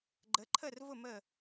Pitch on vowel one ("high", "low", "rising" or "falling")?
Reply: rising